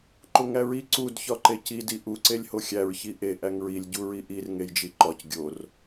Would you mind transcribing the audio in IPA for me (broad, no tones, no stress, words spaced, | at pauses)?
ǃoŋæɹi ǀud çɒǃeci diʔu ǀelʲhoxʲæɹ çiʔe ʔæŋɹilʲ ɟuɹiʔir ŋejd͡ʒiǃɒc ɡʲor